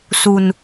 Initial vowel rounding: rounded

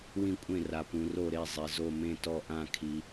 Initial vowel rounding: unrounded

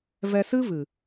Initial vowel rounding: unrounded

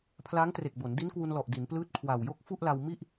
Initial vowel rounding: unrounded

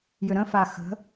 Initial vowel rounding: rounded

